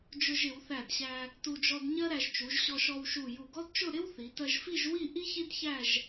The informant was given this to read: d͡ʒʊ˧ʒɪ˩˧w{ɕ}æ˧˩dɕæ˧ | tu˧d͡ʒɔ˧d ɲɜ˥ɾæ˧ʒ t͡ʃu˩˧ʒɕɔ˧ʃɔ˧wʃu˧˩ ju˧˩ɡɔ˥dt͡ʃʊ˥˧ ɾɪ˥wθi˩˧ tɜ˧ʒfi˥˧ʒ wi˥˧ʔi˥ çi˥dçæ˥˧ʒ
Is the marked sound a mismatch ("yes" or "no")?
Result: yes